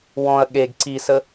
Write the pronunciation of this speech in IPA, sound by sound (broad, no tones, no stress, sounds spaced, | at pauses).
w ɔ̃ ɐ̯ ɠ e ɡ ǀ i s ə